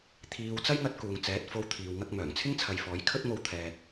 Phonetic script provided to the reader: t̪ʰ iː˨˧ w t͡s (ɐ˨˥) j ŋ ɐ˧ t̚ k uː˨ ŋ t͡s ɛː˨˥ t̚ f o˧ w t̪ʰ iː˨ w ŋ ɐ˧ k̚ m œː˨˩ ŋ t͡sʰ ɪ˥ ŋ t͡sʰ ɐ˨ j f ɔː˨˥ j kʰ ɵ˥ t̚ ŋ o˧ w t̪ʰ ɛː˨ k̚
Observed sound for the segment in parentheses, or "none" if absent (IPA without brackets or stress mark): ɐ˥